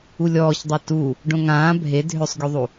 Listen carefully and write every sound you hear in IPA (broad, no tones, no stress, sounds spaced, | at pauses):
u lʲ ɔː ç dˤ a t u | ɖ õ ŋ ãː bʱ e dʱ ø sˤ ɡʲ u ðˤ u